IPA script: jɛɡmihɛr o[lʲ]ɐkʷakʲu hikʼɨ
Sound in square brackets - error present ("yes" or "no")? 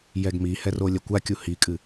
no